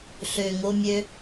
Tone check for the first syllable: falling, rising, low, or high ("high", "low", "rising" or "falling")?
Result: low